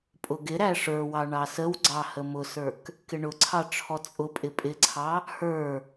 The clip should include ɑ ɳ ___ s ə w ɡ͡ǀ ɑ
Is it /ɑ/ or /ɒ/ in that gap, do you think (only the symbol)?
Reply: ɑ